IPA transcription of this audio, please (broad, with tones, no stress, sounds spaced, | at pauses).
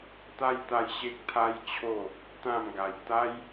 t̪ a˦ j t̪ a˧ j ɕ e˦ k̚ t̪ʰ a˦ j t͡ɕʰ o˥˧ | t̪ ã˥˧ m ɡ a˧ j t̪ a˦ j